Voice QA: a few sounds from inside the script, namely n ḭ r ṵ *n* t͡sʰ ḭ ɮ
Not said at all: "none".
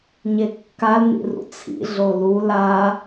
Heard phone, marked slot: none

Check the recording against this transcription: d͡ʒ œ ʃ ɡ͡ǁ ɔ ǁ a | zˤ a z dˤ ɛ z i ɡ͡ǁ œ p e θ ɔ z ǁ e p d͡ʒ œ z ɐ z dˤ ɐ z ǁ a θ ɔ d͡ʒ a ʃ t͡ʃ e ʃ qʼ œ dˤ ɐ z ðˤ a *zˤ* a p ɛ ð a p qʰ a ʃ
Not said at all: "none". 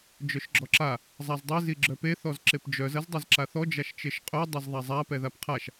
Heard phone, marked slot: zˤ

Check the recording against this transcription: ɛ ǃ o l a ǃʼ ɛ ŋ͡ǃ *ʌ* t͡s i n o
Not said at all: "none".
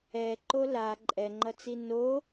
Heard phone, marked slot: ʌ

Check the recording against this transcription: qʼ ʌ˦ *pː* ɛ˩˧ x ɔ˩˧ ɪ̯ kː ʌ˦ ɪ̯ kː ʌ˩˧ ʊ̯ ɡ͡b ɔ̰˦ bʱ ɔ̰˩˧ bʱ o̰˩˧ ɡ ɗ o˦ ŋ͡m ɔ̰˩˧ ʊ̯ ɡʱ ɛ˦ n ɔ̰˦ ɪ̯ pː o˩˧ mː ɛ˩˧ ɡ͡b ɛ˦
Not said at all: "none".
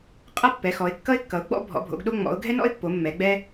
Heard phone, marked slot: pː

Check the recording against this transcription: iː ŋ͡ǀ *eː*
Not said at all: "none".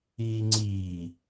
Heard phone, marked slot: iː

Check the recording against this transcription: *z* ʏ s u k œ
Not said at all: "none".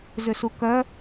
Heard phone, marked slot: z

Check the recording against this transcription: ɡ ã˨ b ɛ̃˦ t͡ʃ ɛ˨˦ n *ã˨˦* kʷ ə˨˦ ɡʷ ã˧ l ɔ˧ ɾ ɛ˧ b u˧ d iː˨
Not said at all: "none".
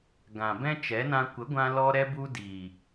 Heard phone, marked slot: ã˧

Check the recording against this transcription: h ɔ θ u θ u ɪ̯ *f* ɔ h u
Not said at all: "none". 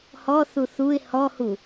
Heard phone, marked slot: h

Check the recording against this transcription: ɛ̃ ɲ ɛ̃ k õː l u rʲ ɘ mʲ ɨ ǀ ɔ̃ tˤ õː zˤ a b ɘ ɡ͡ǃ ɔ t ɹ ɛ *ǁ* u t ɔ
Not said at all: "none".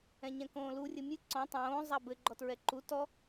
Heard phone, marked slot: ǃ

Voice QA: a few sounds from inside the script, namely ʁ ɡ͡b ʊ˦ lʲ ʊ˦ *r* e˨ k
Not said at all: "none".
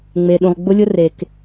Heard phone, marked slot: r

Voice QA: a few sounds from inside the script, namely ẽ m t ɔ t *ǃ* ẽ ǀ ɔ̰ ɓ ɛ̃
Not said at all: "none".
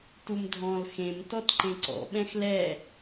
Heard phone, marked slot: ǃ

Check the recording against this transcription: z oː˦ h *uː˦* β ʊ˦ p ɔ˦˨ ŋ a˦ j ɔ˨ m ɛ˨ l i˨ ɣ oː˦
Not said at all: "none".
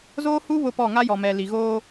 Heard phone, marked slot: uː˦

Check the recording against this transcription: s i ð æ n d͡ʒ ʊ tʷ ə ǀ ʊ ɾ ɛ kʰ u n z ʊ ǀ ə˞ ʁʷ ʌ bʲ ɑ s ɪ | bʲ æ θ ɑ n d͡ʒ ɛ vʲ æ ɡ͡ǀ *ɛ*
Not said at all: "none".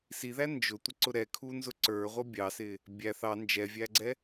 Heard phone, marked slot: ɛ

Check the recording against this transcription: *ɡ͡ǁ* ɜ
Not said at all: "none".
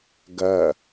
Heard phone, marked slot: ɡ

